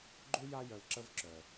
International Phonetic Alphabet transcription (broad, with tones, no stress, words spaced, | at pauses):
ɡ͡ǃu˥ja˦ jœ˨lǁə˦vǁœ˩